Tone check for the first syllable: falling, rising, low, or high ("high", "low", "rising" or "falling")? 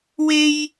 high